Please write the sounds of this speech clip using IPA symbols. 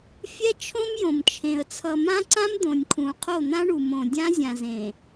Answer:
fʲɛ˦ t͡ʃʰõ˦mjõ˨mt͡ʃʰẽ˨ə̯ t͡sʰʌ˨mã˦ǀã˦m d̪õ˨nʲkʰũ˨ qʰo˦˨n̪ã˦ɳu˨ mõ˨ dʲã˦zʲã˨zẽ˨

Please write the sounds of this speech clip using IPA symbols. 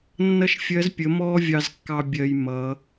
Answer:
nːʌ˥ʃfʲɜ˧˥z pʲə˩˧ mɔː˥ vʲɑ˧zkːɑ˧ bʲɜ˧j mʌ˩˧

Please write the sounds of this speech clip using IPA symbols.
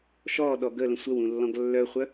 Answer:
ʃɔ ɗɔɡələ̃ sʷəwũ lːɔ̃ɡlːœχʷœ

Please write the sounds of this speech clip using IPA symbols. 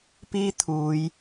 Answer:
piː˥ t̪ʰuː˨˧j

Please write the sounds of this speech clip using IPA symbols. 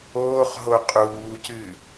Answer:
oːχɦo qʼuːcɨ

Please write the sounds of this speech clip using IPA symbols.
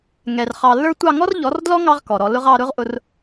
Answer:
ŋɛ˨r χɑ˨lːə˞˦tʷɑ˦˨ ŋɔ˦rʎɔ˨˦rdlɔ˦ ŋɑ˦ʁkɔ˨ɾɔ˧lʊ˦ʁ ɑ˧ ɾʊ˦ʁʔʊ˧r

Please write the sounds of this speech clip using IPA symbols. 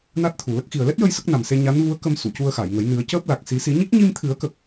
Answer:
na˦˥t̚t̪ʰu˨˩lə˦˥k̚ xi˨˩ə̯lɛ˦˥t̚jə˧j sə˦˥k̚na˨˩mse˧ ɲa˧˥nvu˧˥ə̯kə˧m su˨˩˨cu˧ə̯xa˨˩˨jŋə˨˩˦j nɨ˨˩˦ə̯cəː˦˥p̚la˨˩k̚ si˨˩˦si˨˩˦ɲi˦˥k̚ ɲi˧mt̪ʰɨ˨˩˦ə̯kə˨˩k̚

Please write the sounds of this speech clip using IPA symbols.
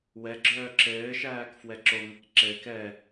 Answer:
wɛɡ͡ǁœː ǁɘːʃæːk fwɛǁoŋɘk ǁɘːk ɛ

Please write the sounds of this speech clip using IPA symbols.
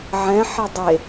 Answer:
ʕɛ̃ħɛ dˤe

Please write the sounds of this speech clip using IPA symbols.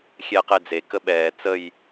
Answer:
xʲɛːqed͡ze kəɓɛː t͡səj

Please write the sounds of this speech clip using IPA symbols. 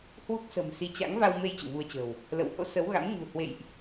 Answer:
hwu˦˥k̚sə̤˨˩msi˨˦ t͡ɕa̰˧˥ŋ va˧wme˧j t͡ɕṵ˧˨vu˧ə̯t͡ɕə̤˨˩w | lə̰˧˨w ho̰˧˥ sə˨˦wɣa̰˧˥m ɲṳ˨˩hwḛ˧˨jʔ

